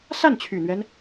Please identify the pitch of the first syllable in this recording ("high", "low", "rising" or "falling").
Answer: falling